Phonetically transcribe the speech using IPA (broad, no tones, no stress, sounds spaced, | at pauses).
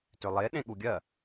t ʏ lˠ e ɗ ẽ ɠ u ɡʲ ɜ